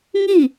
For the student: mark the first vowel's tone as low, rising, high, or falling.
falling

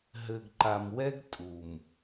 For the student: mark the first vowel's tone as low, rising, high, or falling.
low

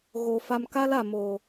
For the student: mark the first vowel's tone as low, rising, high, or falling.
low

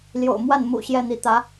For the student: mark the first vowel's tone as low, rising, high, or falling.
low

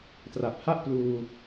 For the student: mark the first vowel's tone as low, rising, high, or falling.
low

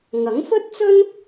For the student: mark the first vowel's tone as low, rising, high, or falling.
rising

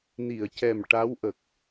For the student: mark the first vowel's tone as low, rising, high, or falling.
low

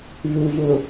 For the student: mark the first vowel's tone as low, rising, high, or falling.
low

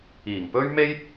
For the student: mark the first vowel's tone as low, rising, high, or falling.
low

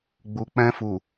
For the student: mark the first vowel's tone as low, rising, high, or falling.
low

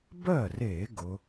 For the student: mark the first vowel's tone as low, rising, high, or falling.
falling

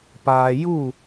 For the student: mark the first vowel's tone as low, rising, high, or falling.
low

